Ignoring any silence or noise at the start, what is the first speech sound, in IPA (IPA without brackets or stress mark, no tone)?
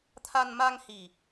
t̪ʰ